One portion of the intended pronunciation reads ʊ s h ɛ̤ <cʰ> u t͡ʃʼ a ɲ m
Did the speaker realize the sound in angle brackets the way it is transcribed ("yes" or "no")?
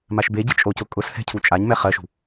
yes